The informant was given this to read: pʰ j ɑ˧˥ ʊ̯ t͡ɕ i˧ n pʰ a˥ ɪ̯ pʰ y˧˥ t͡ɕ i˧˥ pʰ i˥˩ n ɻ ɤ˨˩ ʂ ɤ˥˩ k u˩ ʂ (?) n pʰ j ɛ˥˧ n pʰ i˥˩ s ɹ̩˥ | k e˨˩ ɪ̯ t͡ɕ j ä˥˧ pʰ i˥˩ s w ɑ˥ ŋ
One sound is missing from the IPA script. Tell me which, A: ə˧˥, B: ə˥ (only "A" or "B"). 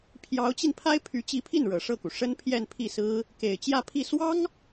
B